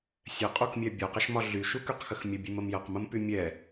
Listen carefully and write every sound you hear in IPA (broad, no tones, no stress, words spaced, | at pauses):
sʲɛqʼukmʲɛ bʲɔqəʃmɒ ɮyʃukyqxəx mʲəbʲʉməm jɐqməmpy mʲɛ